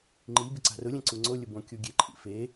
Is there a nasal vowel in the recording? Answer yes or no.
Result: yes